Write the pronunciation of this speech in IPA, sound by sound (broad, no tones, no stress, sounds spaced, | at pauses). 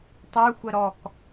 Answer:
tˤ ə˞ xʷ ə ɾ ɔ k